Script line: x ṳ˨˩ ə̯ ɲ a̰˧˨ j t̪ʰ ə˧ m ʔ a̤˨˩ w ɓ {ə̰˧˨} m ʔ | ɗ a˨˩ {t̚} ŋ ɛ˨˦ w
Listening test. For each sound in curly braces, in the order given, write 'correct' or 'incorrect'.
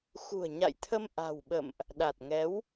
correct, correct

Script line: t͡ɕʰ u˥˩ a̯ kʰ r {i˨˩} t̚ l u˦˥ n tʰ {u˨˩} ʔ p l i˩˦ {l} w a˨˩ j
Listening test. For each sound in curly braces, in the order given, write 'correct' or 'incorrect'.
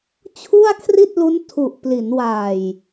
incorrect: i˥˩, correct, incorrect: n

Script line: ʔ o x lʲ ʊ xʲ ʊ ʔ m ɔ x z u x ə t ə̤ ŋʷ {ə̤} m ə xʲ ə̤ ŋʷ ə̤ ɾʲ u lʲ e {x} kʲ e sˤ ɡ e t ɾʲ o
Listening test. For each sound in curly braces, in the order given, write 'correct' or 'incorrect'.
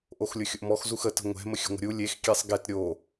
incorrect: ɛ̤, correct

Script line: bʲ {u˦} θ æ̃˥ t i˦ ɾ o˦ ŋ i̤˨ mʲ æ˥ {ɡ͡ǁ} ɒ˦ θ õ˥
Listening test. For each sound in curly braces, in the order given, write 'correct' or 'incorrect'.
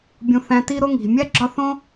incorrect: ũ˦, correct

